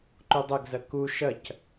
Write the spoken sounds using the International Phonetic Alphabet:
ǃudˤɐɡzɐ ku ʃɐc

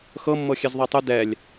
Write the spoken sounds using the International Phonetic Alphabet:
xɤmːɤxʲɛz ðˤɛtˤu dɛlʲ

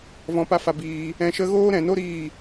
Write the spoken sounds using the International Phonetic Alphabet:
vɔ̃˧pa˦fa˧ biː˧ | ɛ̃˧ʃə˦ ɣoː˦ɾɛ̃˨no˦ ɾiː˦˨

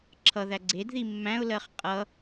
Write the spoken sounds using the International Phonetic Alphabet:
ǁʰʌðæ ɡ͡ǀedði mːæ̃ʊ̯lɜχ qʼʌ

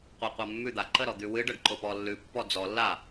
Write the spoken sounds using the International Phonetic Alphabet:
qʷaqʷamːʉ d̪aǃəɾɔ d̪ʉwɨɖəɖ ǃʊpɔlːʉ pːɔd͡zɔlːa

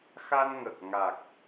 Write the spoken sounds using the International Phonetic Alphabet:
xa˧nŋə˨˩k̚ŋa˨˩k̚

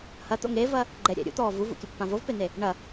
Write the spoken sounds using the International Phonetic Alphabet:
hɐt̪o̰ŋ evɐ | ɡ͡ǃɛ ɾʲɛ̰ ɾʲṵt̪ɔː vuvṵkʲɘpːã vovpen̪e | ɳɐ

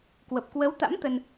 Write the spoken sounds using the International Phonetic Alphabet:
kwə˨˩p̚kwə˨˦wt̪a̰˧˥m t̪ə˧n

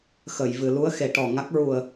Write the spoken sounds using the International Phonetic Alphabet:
xə˨˩˨j vɨ˨˩˨lu˧˥ə̯xe˨˩˨ ʈɔ˨˩ŋa˦˥k̚ ɹu˨˩ə̯

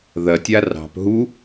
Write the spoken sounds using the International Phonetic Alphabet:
ðɐtʲa rɑ̤p ɦu

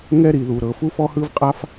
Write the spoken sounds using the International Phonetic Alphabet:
ŋɛ˥ ɾi˩ðu˩ ɾɤ˩ fu˥fɔ˥hɯ˥vqʼa˥f

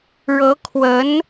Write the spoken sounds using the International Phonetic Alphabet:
ɻɤ˧˥kʰwə˧˥n

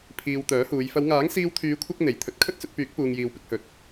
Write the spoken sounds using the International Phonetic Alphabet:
pʰiː˨wt̪œː˨˥huː˨˧j fɐ˨˧wŋaː˨˥ŋ siː˧wt̪ʰyː˨˧kʷʰɐ˧k̚ n̪e˨˩j t̪ʰɵ˨˥t̚kʰɵ˥t̚ sɵ˧t̚pyː˨˥k̚ puː˨ŋjiː˨wpɪ˧k̚hɵ˨˥t̚

